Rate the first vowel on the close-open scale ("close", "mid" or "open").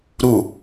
close